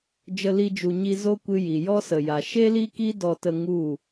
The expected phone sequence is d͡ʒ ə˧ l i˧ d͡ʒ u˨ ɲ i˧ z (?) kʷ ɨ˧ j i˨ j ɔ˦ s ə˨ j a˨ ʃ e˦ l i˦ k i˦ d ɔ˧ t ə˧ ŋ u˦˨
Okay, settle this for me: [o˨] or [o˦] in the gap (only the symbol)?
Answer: o˦